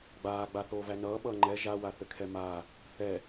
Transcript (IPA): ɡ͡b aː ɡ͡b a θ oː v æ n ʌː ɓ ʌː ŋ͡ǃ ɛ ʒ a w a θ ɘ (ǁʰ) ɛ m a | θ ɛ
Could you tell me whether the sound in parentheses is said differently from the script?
yes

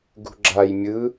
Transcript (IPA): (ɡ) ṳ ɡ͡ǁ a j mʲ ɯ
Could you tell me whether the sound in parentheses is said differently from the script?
no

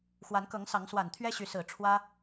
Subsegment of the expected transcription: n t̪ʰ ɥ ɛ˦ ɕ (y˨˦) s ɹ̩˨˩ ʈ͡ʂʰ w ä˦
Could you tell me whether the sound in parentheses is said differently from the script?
no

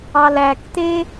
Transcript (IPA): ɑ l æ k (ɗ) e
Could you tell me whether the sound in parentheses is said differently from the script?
yes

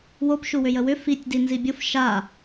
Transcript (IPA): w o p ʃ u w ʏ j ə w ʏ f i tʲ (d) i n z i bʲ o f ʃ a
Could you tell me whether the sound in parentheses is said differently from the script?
no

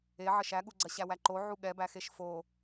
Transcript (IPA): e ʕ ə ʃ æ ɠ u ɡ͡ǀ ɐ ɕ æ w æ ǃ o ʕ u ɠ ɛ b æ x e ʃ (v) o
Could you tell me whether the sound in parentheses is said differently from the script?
yes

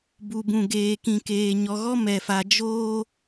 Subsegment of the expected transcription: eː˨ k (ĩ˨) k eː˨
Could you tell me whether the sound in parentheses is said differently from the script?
no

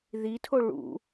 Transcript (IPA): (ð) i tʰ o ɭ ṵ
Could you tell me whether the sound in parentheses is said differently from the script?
no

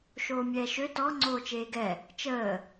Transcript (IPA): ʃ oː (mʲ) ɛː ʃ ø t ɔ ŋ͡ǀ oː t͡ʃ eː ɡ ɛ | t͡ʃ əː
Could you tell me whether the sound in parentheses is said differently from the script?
no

